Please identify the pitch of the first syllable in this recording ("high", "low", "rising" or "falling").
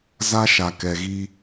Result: high